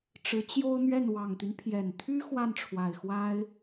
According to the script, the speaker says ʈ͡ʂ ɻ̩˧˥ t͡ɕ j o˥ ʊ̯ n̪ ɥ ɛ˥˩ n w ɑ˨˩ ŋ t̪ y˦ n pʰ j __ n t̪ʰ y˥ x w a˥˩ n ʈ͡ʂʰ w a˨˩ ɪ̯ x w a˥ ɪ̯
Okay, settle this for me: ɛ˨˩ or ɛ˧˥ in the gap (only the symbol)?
ɛ˨˩